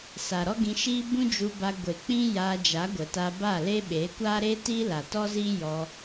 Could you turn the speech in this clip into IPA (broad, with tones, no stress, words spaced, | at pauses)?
sa˨ɾɔ˦ɡĩ˧ʃiː˦ bũ˦d͡ʒu˧ba˧ ɡʷe˨k͡pĩ˦ jaː˧d͡ʒa˨˦ɡʷə˨ta˧ ba˦˨le˦ɓeː˨˦ kʷaː˦ɾeː˦tiː˦la˨ tɔ˦ziː˦ jɔ˧